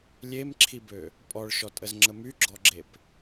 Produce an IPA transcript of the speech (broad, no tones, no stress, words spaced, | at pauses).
lʲemǁʰibø | pʼɔɭʃɔtʼəzŋ͡ǁə myɡ͡ǁɔɡ͡ǁep